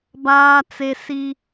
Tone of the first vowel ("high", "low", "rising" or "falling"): high